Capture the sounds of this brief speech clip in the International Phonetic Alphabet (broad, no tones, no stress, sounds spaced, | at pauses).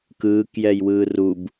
k ɯː k j ɛ j w ɯː r u b